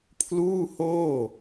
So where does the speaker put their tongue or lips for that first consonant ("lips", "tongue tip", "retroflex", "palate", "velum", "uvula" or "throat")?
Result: lips